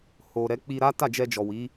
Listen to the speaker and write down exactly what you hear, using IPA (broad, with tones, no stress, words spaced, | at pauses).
ho˨ ɾɛ˨˦k͡pi˧ɾa˦ ta˦˨d͡ʒɛ˧d͡ʒɔ˨ wi˨˦